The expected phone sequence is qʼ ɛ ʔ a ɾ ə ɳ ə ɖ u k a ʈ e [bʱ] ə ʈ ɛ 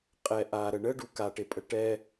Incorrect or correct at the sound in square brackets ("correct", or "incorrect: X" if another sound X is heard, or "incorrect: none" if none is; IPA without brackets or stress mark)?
incorrect: pʼ